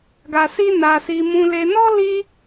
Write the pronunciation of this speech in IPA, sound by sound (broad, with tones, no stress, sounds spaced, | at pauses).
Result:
ɡ a˧ s i˦ n a˧ s i˧ m ũ˧ l e˧ n ɔ˦ l i˦